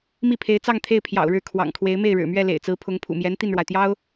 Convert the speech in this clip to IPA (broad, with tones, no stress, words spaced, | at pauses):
mi˥˩pʰe˧˥ɪ̯t͡sɑ˥˧ŋt̪ʰe˥˩ɪ̯ pʰjɑ̰˨˩ʊ̯ɻɻ̩˥˩ kʰwɑ̰˨˩ŋkʰwe˧˥ɪ̯ me˥˩ɪ̯ɻɻ̩˨˩mɥɛ˥˩ lḛ˨˩ɪ̯t͡sɹ̩˧˥pʰʊ˧˥ŋ pʰṵ˨˩mjɛ˧˥n t̪i˥˩nɻwa˩ɪ̯t̪jɑ˥ʊ̯